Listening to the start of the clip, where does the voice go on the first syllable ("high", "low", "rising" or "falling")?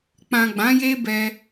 low